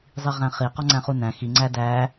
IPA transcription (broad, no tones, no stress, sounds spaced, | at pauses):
zˤ i ʁ æ̃ χ i q ɔ ŋ͡ǀ æ̃ χ u n æ̃ x i ŋ͡ǀ æ d æ